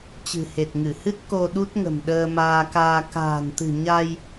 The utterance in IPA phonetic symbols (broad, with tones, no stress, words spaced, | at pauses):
t͡ɕɨ̤˨˩he˨˩t̚ŋɨ˧˩hɨ˦˥t̚ ko˧ ɗu˦˥t̚ŋə̤˨˩m ɗəː˧maː˧kaː˧ ka̤ː˨˩nt̪ɨ̤˨˩ ɲa˧j